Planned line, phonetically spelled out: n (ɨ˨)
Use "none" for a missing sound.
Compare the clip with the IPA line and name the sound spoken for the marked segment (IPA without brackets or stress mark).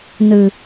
ɨ˨